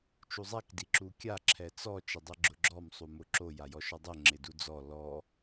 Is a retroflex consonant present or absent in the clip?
absent